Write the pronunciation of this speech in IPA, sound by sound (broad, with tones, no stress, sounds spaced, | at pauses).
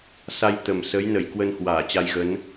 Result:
s a˧ j t̪ ə˨˩ m s ə˨˦ j n ə˧˩ j k w ə˧ n h w aː˧˩ t͡ɕ a˧ j ɣ ə˨˦ n